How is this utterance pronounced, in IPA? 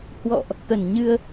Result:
h w ɔ̰˧˨ ʔ | t̪ ə˧˩ n ɲ ɨ˧ ə̯

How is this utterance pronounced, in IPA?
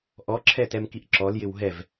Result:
ʔ ɔ ǁʰ ɛ t ɛ m k i ʔ ǁ ɔ l j ɪ w ɦ ɛ v

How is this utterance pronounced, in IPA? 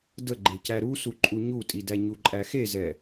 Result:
d ə ɡ͡ǃ e c æ ɾ u s u ǃʼ u ɲ u tʼ i d æ ɲ u ǃʼ æ x e z ɛ

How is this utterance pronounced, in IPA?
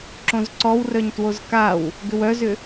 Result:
ǁ õ z ǀ ɔ w r œ ɲ t w o z k a w | ɡ ʏ w œ z ʏ

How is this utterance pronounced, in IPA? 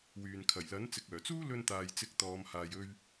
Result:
w yː˨ n kʰ ɐ˨˩ j l ɐ˨˥ n t͡s ɪ˨ k̚ œː˨˩ t͡s uː˥ l ɵ˧ n t̪ aː˨ j t͡s ɪ˨˥ k̚ t̪ ɔː˨˧ m h aː˨ j ɵ˧ ɥ

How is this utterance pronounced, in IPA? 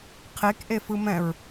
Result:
qʰ e k ʔ e f ɯ m ɛ̃ ɹ

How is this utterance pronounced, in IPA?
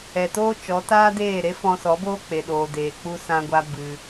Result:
ɛ˨ t oː˦ t͡ʃ ɔ˨˦ t aː˦ d eː˦˨ ɾ e˦ f ɔ̃˧ s ɔ˨˦ b oː˦ k͡p e˨ ɗ oː˨ d eː˨ k͡p u˦ s ã˧ ɡʷ a˧ b ɨ˧

